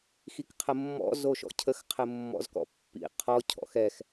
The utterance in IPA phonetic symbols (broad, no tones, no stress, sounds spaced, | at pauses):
x i k qʰ ə mː ɔ̰ z o ʃ ɔ̰ cʰ ə x qʰ ɘ mː ɔ̰ z k ɔ̰ pː ḭ qʰ ɔ cʰ ɔ̰ x ɛ x